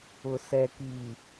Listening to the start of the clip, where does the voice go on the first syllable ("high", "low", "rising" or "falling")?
low